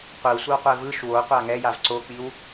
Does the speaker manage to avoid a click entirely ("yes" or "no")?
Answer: no